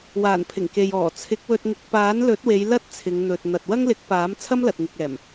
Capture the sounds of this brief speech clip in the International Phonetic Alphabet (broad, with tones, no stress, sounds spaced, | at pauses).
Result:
w aː˨˩ n pʰ ɪ˨˩ ŋ k e˨ j ɔː˨˩ t͡sʰ ɪ˨˥ k̚ w ɵ˧ t̚ ŋ ɪ˧ k̚ p aː˨˥ n l ɵ˨˥ t̚ w e˨˧ j l ɐ˥ t̚ t͡sʰ ɪ˨˧ ŋ n̪ ɵ˨ t̚ n̪ ɐ˨ t̚ w ɐ˥ ŋ l ɪ˨˥ k̚ p aː˨˥ m t͡sʰ ɐ˥ m l ɐ˨ t̚ ŋ ɪ˨ k̚ ɛː˨˩ m